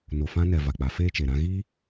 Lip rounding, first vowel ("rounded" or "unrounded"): rounded